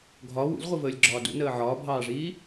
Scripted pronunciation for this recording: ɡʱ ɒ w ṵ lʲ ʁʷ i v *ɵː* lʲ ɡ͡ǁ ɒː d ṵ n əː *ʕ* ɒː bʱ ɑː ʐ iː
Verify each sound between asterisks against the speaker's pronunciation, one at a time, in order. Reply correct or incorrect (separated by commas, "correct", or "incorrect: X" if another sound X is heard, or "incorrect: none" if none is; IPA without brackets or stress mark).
incorrect: əː, correct